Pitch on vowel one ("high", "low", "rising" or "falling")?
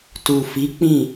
low